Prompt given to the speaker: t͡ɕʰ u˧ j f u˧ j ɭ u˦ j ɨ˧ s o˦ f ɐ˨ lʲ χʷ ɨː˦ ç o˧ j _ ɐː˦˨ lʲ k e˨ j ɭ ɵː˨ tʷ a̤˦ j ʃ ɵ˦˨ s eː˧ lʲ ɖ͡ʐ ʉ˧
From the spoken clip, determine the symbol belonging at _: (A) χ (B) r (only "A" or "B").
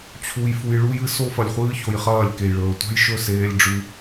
A